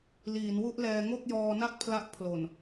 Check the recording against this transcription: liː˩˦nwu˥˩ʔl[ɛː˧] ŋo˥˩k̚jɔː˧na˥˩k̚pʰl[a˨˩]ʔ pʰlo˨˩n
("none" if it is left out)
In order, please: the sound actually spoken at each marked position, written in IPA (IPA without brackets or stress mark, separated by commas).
ɛː˧, a˦˥